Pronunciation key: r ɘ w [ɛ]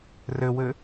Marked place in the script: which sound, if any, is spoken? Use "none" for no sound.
ɘ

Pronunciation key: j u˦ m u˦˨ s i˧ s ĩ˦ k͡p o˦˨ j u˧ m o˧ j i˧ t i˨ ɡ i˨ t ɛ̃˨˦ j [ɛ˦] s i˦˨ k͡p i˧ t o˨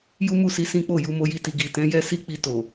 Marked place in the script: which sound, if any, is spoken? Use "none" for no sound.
ɛ˦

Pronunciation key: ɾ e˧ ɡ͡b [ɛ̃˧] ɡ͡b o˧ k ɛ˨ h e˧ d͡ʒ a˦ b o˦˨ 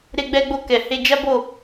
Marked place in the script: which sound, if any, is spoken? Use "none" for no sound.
ɛ˧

